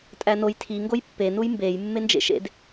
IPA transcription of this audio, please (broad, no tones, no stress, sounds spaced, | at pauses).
tʼ æ n o j tʰ i ŋ ɡ o j pː e n u j m b e j mː e n d͡ʒ ḛ ʃ ḛ d